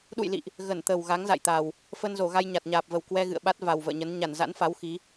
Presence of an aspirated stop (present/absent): absent